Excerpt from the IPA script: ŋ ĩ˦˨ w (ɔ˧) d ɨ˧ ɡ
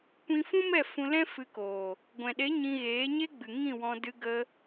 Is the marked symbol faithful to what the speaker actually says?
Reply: no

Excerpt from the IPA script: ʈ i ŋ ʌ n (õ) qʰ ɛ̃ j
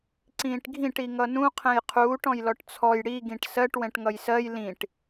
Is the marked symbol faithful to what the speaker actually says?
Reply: no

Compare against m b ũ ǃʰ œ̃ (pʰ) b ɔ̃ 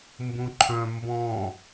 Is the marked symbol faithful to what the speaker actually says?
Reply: no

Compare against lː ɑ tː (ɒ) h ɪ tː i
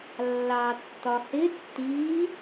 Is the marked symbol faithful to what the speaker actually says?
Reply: yes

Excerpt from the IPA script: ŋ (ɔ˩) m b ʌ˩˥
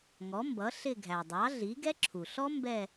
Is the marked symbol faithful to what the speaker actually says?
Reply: no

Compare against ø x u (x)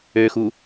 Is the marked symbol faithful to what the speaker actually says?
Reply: no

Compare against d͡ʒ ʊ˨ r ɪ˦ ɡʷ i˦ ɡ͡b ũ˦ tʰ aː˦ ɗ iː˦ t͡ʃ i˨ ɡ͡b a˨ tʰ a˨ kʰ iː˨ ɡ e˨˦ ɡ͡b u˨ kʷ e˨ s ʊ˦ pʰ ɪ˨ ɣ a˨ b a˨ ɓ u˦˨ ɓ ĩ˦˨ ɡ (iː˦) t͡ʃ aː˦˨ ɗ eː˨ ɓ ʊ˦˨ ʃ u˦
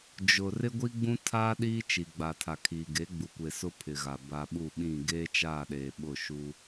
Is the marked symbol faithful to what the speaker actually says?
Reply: no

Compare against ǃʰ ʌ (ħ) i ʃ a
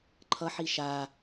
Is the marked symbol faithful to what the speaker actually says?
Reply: yes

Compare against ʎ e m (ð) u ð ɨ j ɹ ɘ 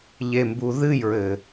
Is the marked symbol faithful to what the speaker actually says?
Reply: no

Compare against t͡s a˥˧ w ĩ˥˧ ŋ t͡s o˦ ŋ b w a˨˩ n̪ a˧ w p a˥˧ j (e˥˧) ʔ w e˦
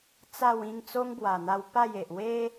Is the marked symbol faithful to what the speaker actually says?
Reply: no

